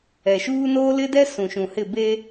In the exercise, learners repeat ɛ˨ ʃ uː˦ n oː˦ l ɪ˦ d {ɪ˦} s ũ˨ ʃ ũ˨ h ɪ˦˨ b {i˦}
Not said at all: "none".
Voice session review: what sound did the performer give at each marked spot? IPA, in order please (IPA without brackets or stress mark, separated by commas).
ɛ˦, e˦